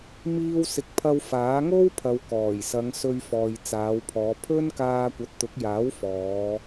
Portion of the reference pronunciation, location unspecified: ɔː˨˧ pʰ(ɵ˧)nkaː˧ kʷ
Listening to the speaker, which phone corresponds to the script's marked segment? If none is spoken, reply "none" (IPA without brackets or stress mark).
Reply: ɵ˥